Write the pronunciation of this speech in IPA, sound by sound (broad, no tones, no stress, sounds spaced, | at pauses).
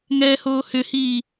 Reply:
ŋ ɛː h oː h ʏ h iː